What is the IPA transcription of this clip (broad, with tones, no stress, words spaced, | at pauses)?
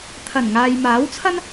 t̪ʰɐ˨˩nŋaː˨jmaː˨˥wt͡sʰɐ˥n